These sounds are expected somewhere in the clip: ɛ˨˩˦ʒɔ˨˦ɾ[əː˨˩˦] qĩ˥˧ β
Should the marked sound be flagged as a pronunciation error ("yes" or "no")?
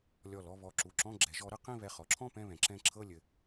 yes